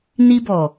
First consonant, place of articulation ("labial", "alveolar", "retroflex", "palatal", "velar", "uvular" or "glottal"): alveolar